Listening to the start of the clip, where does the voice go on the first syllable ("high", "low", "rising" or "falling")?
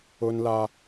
high